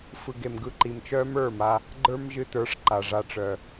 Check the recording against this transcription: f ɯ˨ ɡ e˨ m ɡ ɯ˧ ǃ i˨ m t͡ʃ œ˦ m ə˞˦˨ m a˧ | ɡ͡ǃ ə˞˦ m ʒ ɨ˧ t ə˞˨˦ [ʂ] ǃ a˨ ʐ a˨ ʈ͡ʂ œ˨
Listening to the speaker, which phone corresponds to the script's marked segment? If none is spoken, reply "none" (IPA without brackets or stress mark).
ʂ